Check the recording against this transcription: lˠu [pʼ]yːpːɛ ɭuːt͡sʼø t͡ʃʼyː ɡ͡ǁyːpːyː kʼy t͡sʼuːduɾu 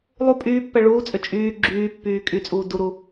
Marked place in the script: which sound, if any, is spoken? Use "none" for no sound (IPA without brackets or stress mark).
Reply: pʼ